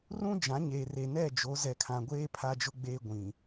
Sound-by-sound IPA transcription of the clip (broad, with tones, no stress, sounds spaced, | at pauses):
r ũ˦ d͡ʒ ã˨˦ ɲ eː˨ r e˨ n ɛ˦˨ d͡ʒ o˨˦ z ɛ˨ kʰ ã˨ ɡʷ eː˦ pʰ a˦ d͡ʒ ʊ˦ ɡ͡b eː˦ ɡʷ ĩ˨